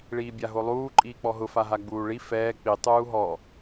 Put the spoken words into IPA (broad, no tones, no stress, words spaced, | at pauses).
ɭiːbʲaɦolˠuː ǃʼiːk͡pɔɦʊ faɦaɡ͡buːɭi fɛː k͡pi tˤuːɦɔ